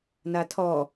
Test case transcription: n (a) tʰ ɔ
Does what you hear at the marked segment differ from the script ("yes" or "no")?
no